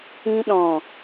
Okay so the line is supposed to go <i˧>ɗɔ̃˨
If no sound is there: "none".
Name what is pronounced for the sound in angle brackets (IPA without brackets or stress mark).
ĩ˧